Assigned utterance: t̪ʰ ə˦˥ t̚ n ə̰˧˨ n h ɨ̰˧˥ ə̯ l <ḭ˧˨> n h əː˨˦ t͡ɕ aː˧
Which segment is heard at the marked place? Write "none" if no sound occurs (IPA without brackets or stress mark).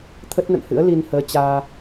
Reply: i˧